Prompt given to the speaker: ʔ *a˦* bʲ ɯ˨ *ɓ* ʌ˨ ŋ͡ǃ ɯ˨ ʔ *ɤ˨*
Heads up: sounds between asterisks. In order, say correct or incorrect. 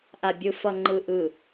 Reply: incorrect: a˨, incorrect: f, incorrect: ɯ˨

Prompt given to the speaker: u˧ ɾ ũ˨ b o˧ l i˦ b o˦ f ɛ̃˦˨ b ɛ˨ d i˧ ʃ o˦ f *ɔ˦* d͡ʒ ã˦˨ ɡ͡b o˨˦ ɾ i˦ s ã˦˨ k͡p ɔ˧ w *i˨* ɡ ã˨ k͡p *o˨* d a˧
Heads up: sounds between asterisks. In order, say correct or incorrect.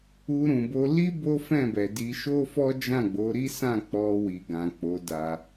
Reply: correct, correct, incorrect: o˨˦

